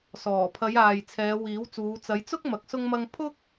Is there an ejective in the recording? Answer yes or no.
no